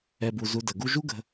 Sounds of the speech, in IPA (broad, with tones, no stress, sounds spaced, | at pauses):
ɛ˨ b u˨ z u˧ d ə˨ ɡ u˧ ʒ u˦ ɡ ə̤˧